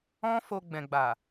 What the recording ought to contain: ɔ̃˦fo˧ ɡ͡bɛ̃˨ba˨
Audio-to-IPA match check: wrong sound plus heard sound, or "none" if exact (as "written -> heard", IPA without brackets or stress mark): b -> ɡ͡b